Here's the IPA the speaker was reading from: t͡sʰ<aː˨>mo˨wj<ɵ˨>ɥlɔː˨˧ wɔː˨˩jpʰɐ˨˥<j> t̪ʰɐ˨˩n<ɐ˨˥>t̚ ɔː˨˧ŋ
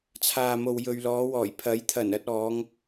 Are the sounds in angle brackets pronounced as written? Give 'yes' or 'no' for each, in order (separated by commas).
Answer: yes, yes, yes, no